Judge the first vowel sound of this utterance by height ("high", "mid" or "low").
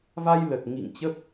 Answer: low